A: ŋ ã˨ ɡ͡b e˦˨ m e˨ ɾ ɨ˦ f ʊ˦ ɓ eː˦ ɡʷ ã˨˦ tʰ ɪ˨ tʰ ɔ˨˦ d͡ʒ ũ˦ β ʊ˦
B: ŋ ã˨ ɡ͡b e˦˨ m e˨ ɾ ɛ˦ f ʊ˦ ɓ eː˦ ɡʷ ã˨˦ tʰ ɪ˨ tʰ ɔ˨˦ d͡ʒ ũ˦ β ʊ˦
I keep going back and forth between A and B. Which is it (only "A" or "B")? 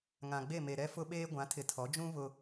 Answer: B